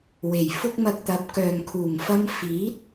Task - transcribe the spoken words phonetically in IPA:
w e˨˩ j f ʊ˥ k̚ m ɐ˧ k̚ t̪ ɐ˨˥ p̚ k œː˨ ŋ kʰ uː˨˩ ŋ f ɐ˧ m f iː˨˥ t̚

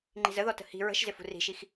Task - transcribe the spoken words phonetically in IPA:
ŋ͡ǃ i̤ z ə ð ɔ t ə̤ h i̤ ɹ ə̤ ʃ z ɪ f ṳ r i̤ ʃ i x

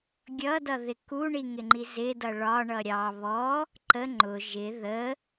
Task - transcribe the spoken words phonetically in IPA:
ɡʲ ʌ d ʌ ð ɪ k u ɳ i ŋ ɪ ŋ͡ǃ i z ɪ d ʌ ɭ ɒ ɳ ʌ ɾʲ ɑ β ɔ | ǃ ə ŋ͡ǃ ʊ ʒ ɪ ð ə

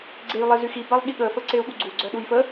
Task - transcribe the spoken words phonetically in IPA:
ɡ͡ǀ e j lˠ e z y x i b a lˠ ɠ i ɠ ə f ə ǀ e u̯ ɠ u ɡ͡ǀ u ɡ͡ǀ œ ɗ u j f ə

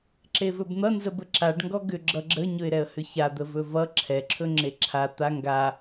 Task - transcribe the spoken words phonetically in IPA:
ǁ e v ɵ b n̪ ʌ n z ə b ə ǁ a ɖ ŋ ɡ ɔ ɡ ʏ ɡ͡ǁ ʌ ɡ͡ǁ ə ɲ ɵ ɪ̯ ɾ ɛ ə̯ h ʏ ç a d̪ ə v ɵ v ʌ ǁʰ ɛ ǁʰ ɵ ŋ͡ǁ e ǁʰ a t̪ a ŋ ɡ a

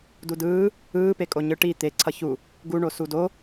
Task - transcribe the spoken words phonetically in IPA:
d u d ɯː | ɯː p e kʼ o ɲ ɯ ʈ i t̪ e ǀʰ ʌ ç u | ɡ u ɳ o s u d o

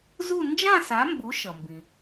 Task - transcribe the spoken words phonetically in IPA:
z u˥˧ n d͡ʒ ã˥˧ s a˨˦ m b u˨˦ ʃ ʌ˩ m b ĩ˩

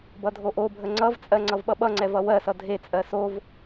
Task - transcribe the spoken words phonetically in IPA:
b ʌ dʱ o ʔ o bʱ ə ŋ͡ǀ ʌ v t͡sʼ ɜ ŋ͡ǀ ʌ v ɓ ʌ ɓ ʌ ŋ͡ǀ ɛ v ʌ w ɜ s ʌ dʱ e t͡sʼ ɜ s o v

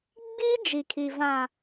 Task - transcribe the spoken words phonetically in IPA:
ɡ͡b iː˦ d͡ʒ i˨ kʰ i˨ v ã˨

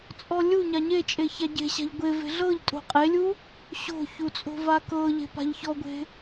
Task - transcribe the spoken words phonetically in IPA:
t͡sʼ ɔ lʲ u ɲ a ɲ e t͡ʃʼ e ç a ɟ e̤ ɕ a̤ ʎ ɡʷ e v e̤ ɮ ɤ ʎ tʼ o̤ qʼ e lʲ u | ɕ o̤ ç u t͡sʼ o̤ v a k ɤ ʎ e̤ p a̤ ʎ ç ɔ ɡʷ e̤

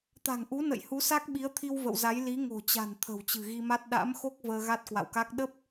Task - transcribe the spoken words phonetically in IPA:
t̪ a̤˨˩ ŋ ʔ u˨˦ n ə̰˧˨ j h u˨˦ s a˦˥ k̚ ɓ i˨˦ ə̯ t̪ʰ i˧ w v ə̰˧˨ w z a˨˦ j l i˨˦ ŋ o̤˨˩ t͡ɕ a̤˨˩ n t̪ʰ ə̤˨˩ w t͡ɕ ɨ̤˨˩ ɣ i˧ m a˦˥ t̚ ɗ a̰˧˥ m x o˦˥ k̚ v əː˧ ɣ a˦˥ t̚ k w a̰˧˨ w k a˦˥ k̚ ɗ ə˦˥ p̚

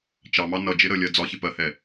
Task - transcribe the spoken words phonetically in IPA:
t͡ʃ ɑ m ɑ n ʌ d͡ʒ ɪ ɾ ə lʲ ɜ d͡z ɒ ç ɪ p ɜ h ɛ

